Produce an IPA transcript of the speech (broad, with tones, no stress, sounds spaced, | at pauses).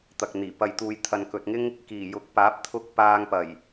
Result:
t̪ ɐ˨ k̚ n̪ iː˨˩ p ɐ˨ j t̪ uː˨ j t̪ʰ ɐ˨ n k ɵ˨ t̚ ŋ ɪ˥ ŋ | k iː˨˩ j ʊ˨˥ k̚ p aː˨˥ p̚ t̪ʰ ʊ˧ k̚ p aː˧ ŋ p ɐ˨˩ j